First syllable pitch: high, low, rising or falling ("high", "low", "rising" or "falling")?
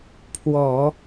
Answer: low